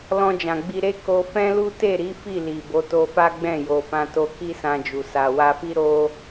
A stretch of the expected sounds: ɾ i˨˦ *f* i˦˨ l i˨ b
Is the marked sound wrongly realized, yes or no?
no